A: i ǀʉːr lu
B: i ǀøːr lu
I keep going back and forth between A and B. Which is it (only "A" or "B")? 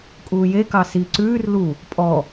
A